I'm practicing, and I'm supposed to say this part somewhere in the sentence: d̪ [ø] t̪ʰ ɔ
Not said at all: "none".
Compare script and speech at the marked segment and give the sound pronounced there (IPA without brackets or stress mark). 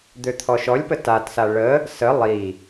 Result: ø